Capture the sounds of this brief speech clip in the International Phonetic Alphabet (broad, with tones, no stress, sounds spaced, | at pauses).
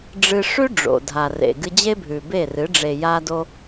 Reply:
ɖ͡ʐ ɨ˧ ʂ ʉ˦ ɖ͡ʐ o̰˨ dʱ a˨ r ḛ˨ ɡ ɨ˧ d͡ʑ e˦ bʱ ʉ˨ b e˦˨ r ɨ˨˦ ɖ͡ʐ e˨ j a˧ d o˧